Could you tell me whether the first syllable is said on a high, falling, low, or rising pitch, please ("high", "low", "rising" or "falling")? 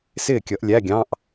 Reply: falling